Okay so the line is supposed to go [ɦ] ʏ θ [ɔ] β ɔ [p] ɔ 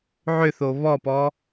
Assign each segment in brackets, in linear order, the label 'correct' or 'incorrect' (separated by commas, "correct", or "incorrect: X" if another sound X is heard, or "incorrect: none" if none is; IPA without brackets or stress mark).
incorrect: ʕ, incorrect: o, correct